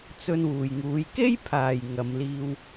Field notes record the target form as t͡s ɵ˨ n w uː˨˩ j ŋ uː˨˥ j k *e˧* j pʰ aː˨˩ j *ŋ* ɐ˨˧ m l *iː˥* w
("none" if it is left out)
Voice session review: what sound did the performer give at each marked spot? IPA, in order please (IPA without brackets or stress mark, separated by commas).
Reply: e˥, ŋ, iː˧